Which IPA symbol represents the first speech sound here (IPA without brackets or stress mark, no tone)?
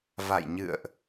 v